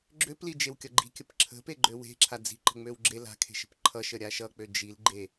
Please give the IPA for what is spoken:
ɡ͡ǁ ø p l i d͡ʒ e w kʲ ʌ ɡ͡ǃ i̤ kʲ ə p ǁʰ ə̤ p e ɡ͡ǃ ø w e̤ ǁʰ a d͡z i̤ ǃ ə̤ ŋ͡m ø w ɡ͡ǁ e l a̤ kʰ e̤ ʃ ə̤ p ǃʰ ʌ ʃ ə ɾʲ a ʃ ʌ k͡p ø d͡ʒ i l ɡ͡ǃ e

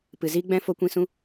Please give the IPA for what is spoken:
p ɨ˨ z iː˦ ɡ͡b ɛ̃˦ f o˦ kʷ ĩ˦ s ũ˦

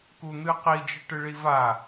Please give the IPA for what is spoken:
k u n̪ ɨ q i d͡ʒ ɨ ʈ ɨ ɭ i v a

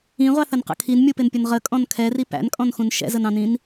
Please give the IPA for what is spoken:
ĩ ʁʷ ɑ θ ə n q ə̰ kʰ i n mʲ u p ɪ n pʲ ʊ n ʁ ə kʼ ɔ̃ n kʰ ɛ r i p æ̰ n kʼ ɔ̃ n x ũ n ʃ ɛ̰ z ə n ɑ̃ n ĩ n

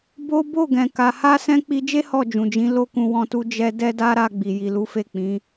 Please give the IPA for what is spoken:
b o˦ b o˦˨ ɡ ɛ̃˨ k a˨ h a˧ s ɛ̃˧ k͡p i˧ d͡ʒ e˦ h ɔ˦˨ d͡ʒ ũ˨ d͡ʒ ĩ˨˦ l o˦ k ũ˧ w ɔ̃˧ t u˧ d͡ʒ ɛ˧ d ɛ˦ d a˦ ɾ a˧ ɡ͡b i˨ j i˨ l u˨˦ f e˦˨ k͡p ĩ˨˦

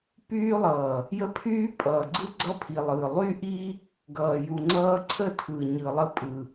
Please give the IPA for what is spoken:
p yː˦ lˠ ʌː˨ | j ə˦ pʰ yː˦ pʼ ʌː˨ ɡ͡ǀ ɯ˦ ɡ͡ǀ ʌ˦ pʰ i˨ lˠ ɯ˨ lˠ y˦ ʔ i˦ | ɡ ʌː˨ j u˨ ŋ͡ǀ ʌː˦ ǀʰ ə˦˨ tʰ ɯ˨ ɲ ɯ˨ lˠ ə˦ pʼ ɯ˨

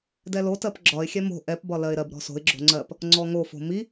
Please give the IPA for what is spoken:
d ɛ l o t ɜ p ɡ͡ǁ ɒ ɪ̯ xʲ ɛ m o̤ ʔ ɛ p b ɒ l ɜ ɪ̯ ɾ ɜ b ɾ ɔ̤ s o̤ ɪ̯ ɡ͡ǁ o̤ ŋ͡ǀ ɜ p | ŋ͡ǀ ɔ ŋ o f o̤ m i

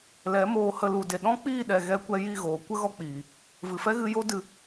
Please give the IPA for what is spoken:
l ɛ˨˦ m oː˧ h ə˧ l u˨ d e˨ ɗ ɔ̃˦ k͡p iː˦˨ ɗ ɛ˨ ɣ ɛ˧ kʷ ɛ˧ j i˦˨ ɣ oː˨ kʷ ə˦ ɣ ɔ˧ k͡p iː˨ | v ɨ˨ f ɛ˦ ɣ ɨ˧ j o˦ d ɨ˧

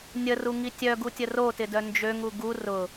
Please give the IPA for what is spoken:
nʲ ə r u ŋ i tʲ œ ɡ u tʲ ə r o t ɪ d œ n d͡ʒ ø ŋ u ɡ u r ʊ

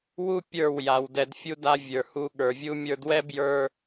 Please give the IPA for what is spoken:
w u˦ pʲ ə˞˦˨ w j a˨ w d ɛ˧ d fʲ u˦ d a˦ vʲ ə˞˨ h u˧ ɠ ə˞˨ vʲ u˦ mʲ ə˞˧ d w ɛ˦ b j ə˞˧

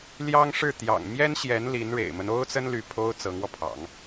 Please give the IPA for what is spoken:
l j ɑ˥ ŋ ʂ ɻ̩˥˩ t̪ j ɑ̰˨˩ ŋ m j ɛ˥ n ɕ j ɛ˧˥ n l i˧˥ n ɻ ḛ˨˩ ɪ̯ m ə˦ n o˥ ʊ̯ t͡s ə˥ n l y˥˩ pʰ o˥ ʊ̯ t͡s ɤ˧˥ ŋ w ɔ˧ pʰ ɑ̰˨˩˦ ŋ

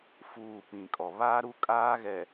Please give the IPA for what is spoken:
f uː˨ p ĩ˨ kʼ ɔ˨ β aː˦ ɾ u˦ kʼ aː˦ ɣ ɛ˨

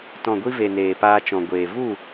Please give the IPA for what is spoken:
t ɔ̃˨ ɡʷ i˧ v e˨ n eː˨ p aː˧ t͡ʃ ɔ̃˨ ɡʷ eː˨ v u˦˨

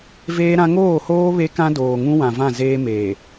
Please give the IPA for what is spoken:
v eː˦ ɾ ã˦ ŋ oː˦˨ h oː˦ β e˦ k ã˦ d oː˨ ŋ ũ˦ w ã˨ v ã˦˨ z eː˦ m eː˨

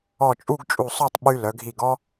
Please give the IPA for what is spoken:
ɔ˧˩ t͡ʃʼ u˥˧ ɡ t͡ʃʼ u˧˩ sˤ œ˥˧ tˤ ɓ y˧ l œ˩˧ ɡʱ i˧˩ ɡ ɔ˥

